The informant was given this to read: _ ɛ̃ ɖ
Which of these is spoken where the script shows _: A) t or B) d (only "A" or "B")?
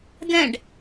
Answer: B